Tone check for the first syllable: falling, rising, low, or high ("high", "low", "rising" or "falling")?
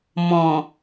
low